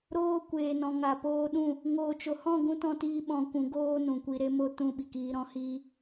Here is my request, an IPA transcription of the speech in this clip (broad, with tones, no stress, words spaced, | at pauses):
ɾoː˧kʷeː˨nɔ̃˨ ŋa˨poː˧ɗũ˦˨ | ŋoː˨t͡ʃo˨hɔ̃˦˨ɡũ˧ tɔ̃˦tiː˦ɓɔ̃˧ kʷũ˨˦ ɡoː˦nũ˨kʷi˧ ɾe˦mo˦ tũ˦˨ɓi˨kiː˧ ɾɔ̃˧hiː˦